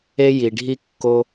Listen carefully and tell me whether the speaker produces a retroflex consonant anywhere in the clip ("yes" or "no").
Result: yes